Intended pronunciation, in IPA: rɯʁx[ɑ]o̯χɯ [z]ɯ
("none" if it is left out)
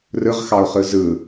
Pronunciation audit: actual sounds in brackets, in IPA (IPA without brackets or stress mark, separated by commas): ɑ, z